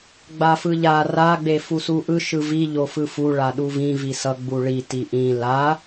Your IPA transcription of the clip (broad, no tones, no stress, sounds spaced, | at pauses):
ɡ͡b a f ɯ ʎ a r a ɡ͡b e f u s u ʔ ɯ ʃ ɯ v i ʎ o f ɯ f u ɭ a ɗ u v ĩ v i s ʌ ɡ͡b u ɭ i t i ʔ ĩ l a